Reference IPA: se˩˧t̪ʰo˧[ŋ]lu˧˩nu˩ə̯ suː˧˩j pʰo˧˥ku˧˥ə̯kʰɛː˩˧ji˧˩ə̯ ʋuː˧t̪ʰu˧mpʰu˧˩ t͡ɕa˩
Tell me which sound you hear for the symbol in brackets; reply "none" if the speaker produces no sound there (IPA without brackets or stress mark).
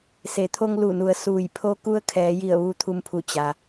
ŋ